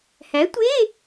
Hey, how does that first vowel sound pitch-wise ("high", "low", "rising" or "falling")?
rising